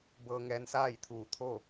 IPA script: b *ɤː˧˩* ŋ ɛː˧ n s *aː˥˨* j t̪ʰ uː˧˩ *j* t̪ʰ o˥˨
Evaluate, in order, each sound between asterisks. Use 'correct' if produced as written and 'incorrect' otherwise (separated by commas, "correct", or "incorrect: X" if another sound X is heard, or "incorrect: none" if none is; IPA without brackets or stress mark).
incorrect: ɤː˧, correct, incorrect: none